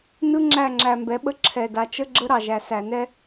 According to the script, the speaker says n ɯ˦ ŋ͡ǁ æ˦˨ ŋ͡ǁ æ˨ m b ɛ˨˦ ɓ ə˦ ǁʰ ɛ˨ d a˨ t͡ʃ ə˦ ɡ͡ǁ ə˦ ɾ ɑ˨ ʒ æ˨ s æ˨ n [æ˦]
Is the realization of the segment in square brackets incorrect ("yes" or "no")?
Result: yes